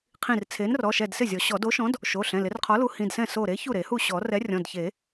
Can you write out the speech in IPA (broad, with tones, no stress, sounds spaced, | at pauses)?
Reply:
qʰ ĩ˧˩ r t͡sʰ e˨˥ n r ɔ˩˧˩ ʃ ɛ˧˩ d s ɪ˥˩ zʲ ɔ˨˩˦ ɕ ɔ˨˩˦ d o˨˥ ʃ ɔ̃˨˥ d | ʃ o˩˧˩ ɬ ɛ̃˩˧˩ l ɪ˨˩˦ r qʰ ɔ˨˥ l u˨˥ h ĩ˩˧˩ d s ɛ̃˥˩ s o˧˩ ɾ e˨˥ ç u˥˩ ɾ e˨˩˦ h u˥˩ ɕ ɔ˨˩˦ r ɛ˨˥ rʲ ɔ̃˩˧˩ d ç e˨˩˦